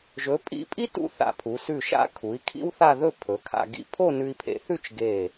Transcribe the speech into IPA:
ʒɵ˩˧pʼḭ˧˩pʼi˥ tṵ˥˧θa̰˧˩pʰu˩˧ sʉ˧˩ʃa̰˧kʰu˩˧i̯ kʰḭ˥wθa˥˧ðɵ˥˧ pʰɵ˩˧kʰa̰˧ ɡḭ˧ pʰo˥˧nʉ˧i̯pʰḛ˧θʉ˥˧t͡ʃ ɡe˧˩

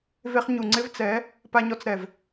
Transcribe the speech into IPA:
ve˧χ ɲu˨ ŋ͡ǀɪ˦vt͡sɛ˨˦ | pa˧ɲɔ˧t͡sɾɛ˨v

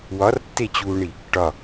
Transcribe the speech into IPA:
wɒrtːet͡ɕuːɳi | ʈɒ

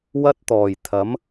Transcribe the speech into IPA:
wɐ˥t̚t̪ɔː˨˩j t̪ʰɐ˨˥m

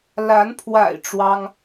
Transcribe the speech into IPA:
la˨˦npʰwa̰˨˩ɪ̯ ʈ͡ʂwɑ˦ŋ

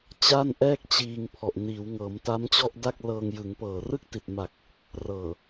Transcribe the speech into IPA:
t͡ɕa˥˩nʔɛː˥˩k̚t͡ɕiː˧ŋ pʰɔ˨˩ʔniː˩˦w ŋɤː˩˦mta˦˥m t͡ɕɔ˥˩ʔda˥˩k̚lɤː˧ŋ jɯ˩˦ŋ pɤː˨˩rɯ˥˩k̚ti˨˩t̚ma˨˩k̚ | rɤː˨˩

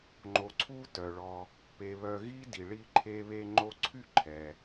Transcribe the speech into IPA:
ŋ͡ǃo˨ ǀʰu˥tœ˩ɭɔ˨ | pe˨ βœ˨ɣi˦di˩ ɭi˦ǃʰe˦βe˥ ŋ͡ǃo˦ǀʰy˥ ǃʰɛ˩

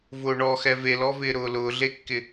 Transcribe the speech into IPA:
vʊːɳɔxɛ velɔvɪːɾʊː lʊːɮekːɪ

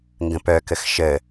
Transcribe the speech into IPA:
ŋɡə̃pœkəx ʃə

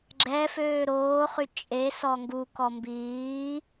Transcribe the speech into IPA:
ɡ͡ǁɛ føːɾoːχy t͡ʃʼe sɔŋɡukɔ mbiː

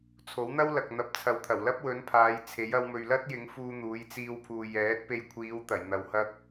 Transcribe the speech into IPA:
t͡sʰo˨˥wn̪ɐ˥w lɐ˨k̚n̪ɐ˨p̚t͡sʰɐ˨w t̪ʰɐ˨˩wlɐ˥p̚wɵ˨˥npʰaː˨˧j t͡sʰe˨˥j ɐ˧wmɵ˨ɥlɐ˥t̚jɪ˨˥ŋ fuː˧n̪uː˨˧jt͡siː˧wpʰuː˨j ɛː˨˥t̚pe˧jkʷʰiː˨˧wt̪ɐ˨˩j n̪ɐ˨whɐ˥k̚

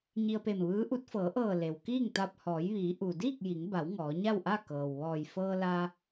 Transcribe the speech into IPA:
ɲi˧ə̯pe˧˩mʋɯː˧˥ʔu˧˥t̚ fɤː˩˧ʔɤː˧˩ le˩w kiː˥˨ŋt̪a˧p̚ hɔː˩˧jʋiː˩˧ ʔu˩diː˥˨k̚ ji˩˧ŋba˩˧w ŋɔː˩˧ɲa˥˨wʔa˥˨ kɤː˩w ʋɔː˧˩j fɤː˧la˧

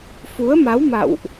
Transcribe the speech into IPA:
fu˨˦ə̯ma˨˦wma̰˧˨wʔ

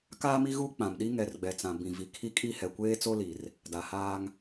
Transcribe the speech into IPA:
kaː˦mi˦ɣuː˦ k͡pã˨mɗi˦ ŋɛ˨rɡ͡bɛ˨t͡sã˨ bĩ˨vi˨kʰi˦kʼi˦ hɛ˨kʷeː˦t͡so˦li˨r | da˨haː˦ŋ

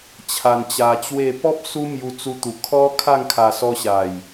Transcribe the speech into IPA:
t͡ɕʰa˧nt͡ɕa˧t͡ɕwe˥˧ pɔ˦p̚ su˦mju˧t͡su˧t̪u˨˩ kʰɔ˦kʰa˥˧ŋkʰa˧sɔ˧ ɕa˨˩j

